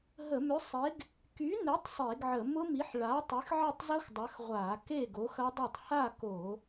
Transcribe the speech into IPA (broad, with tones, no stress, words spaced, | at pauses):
ɦə˧˩˧mʏ˨˥sˤe˨˥ɡ | ky˨˥ne˨˥tˤ sˤe˧˩˧ɡʕə˧˩˧ mʊ˦˥mi˨˥ħ ɭa˨˥tˤy˨˥xʕɛ˥˨tˤ zʊ˦˥x dˤɐ˨˥xʁʷa˧˩˧ ke˥˨ɡo˨˥xɐ˦˥dˤe˥˨tˤ ha˥˨ko˧˩˧